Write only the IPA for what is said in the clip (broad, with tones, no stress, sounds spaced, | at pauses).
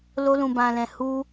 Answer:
l o˧ l ũ˨ b ã˨ l ɛ̃˨ h u˧